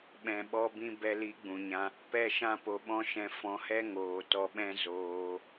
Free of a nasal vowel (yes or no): no